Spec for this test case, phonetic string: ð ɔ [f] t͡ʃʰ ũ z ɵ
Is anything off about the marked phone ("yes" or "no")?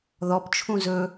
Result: yes